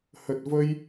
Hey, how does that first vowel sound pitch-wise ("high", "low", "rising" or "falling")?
low